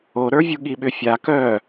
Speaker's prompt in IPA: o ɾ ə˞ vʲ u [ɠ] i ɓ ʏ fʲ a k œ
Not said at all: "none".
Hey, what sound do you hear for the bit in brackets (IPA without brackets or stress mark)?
ɠ